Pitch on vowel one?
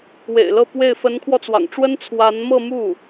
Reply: low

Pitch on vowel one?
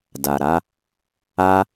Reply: low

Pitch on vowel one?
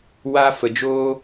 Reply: high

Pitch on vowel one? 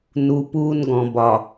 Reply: low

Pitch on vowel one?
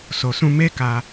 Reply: low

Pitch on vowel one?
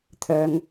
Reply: low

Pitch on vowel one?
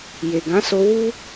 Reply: low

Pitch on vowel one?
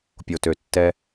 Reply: low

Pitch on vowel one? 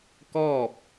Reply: falling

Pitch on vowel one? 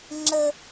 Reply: high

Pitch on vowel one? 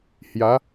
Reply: rising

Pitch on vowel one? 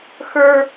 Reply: high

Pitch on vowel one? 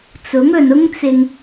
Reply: rising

